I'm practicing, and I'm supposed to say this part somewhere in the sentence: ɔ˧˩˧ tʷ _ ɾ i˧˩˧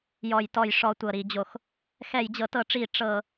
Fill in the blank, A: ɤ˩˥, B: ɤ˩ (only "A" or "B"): B